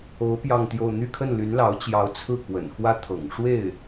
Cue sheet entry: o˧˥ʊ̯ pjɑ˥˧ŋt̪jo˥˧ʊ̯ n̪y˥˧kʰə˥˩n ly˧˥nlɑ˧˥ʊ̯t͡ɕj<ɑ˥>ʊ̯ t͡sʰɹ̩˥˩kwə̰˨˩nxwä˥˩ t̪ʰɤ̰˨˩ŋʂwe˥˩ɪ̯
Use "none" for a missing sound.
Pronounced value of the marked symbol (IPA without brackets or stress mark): ɑ˧˥